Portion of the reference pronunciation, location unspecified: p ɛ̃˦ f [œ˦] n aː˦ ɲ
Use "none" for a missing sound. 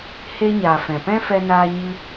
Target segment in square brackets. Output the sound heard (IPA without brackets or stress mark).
ɛ˦